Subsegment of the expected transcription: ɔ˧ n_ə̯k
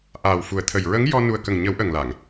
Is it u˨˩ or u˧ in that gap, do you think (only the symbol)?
u˨˩